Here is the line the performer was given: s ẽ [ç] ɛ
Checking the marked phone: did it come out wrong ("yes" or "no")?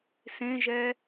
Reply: yes